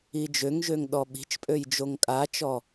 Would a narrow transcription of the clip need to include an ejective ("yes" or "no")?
yes